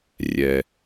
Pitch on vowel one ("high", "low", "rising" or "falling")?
low